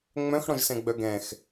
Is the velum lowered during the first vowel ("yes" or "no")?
yes